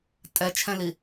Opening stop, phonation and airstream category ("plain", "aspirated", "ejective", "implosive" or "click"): ejective